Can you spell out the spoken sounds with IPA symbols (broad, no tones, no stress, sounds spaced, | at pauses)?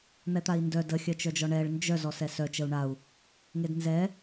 n̪ ɛ t̪ a i̯ n d œ d ə xʲ œ t͡ʃ œ d͡ʒ ɔ ɳ ɛ ɭ n d͡ʒ œ z ɔ s ɛ s œ t͡ʃ ə u̯ ɳ a u̯ | ŋ e d n z ɛ